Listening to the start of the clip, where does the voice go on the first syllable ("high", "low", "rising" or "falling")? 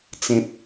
low